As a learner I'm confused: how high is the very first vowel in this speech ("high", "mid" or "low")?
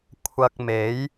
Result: low